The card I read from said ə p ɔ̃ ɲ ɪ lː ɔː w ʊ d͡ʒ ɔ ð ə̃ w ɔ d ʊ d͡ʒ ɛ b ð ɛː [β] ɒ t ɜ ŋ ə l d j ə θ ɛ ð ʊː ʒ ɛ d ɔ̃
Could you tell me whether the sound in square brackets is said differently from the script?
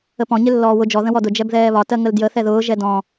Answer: no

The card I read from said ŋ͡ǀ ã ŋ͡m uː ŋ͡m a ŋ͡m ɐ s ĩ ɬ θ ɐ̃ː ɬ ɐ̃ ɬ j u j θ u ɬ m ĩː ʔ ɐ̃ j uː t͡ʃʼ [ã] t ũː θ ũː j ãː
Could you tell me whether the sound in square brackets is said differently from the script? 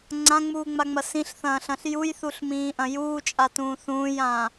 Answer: yes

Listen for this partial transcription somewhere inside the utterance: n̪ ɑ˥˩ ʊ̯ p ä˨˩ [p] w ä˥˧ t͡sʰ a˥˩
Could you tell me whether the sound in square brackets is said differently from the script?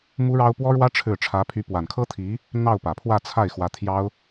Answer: yes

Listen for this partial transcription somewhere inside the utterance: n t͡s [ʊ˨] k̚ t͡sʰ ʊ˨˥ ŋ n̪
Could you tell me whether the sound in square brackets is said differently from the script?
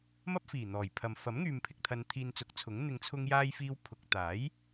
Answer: yes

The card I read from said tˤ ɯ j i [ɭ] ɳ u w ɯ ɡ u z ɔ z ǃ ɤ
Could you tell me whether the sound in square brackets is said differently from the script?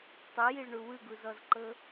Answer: no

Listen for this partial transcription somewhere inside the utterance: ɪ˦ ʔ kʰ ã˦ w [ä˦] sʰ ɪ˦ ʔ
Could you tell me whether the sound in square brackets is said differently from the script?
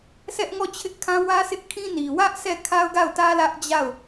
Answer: no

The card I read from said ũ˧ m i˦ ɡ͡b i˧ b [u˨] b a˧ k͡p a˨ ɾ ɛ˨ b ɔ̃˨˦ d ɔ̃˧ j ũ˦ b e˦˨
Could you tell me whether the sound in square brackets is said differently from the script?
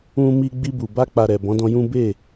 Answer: no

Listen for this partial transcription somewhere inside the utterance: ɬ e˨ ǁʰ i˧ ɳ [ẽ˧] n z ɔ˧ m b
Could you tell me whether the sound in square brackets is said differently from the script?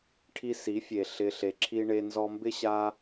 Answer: yes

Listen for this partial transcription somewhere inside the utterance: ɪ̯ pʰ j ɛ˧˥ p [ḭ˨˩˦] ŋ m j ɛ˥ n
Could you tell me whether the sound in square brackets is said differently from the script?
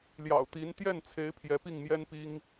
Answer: yes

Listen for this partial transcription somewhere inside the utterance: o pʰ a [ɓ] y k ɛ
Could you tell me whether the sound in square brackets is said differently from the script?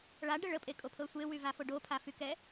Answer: yes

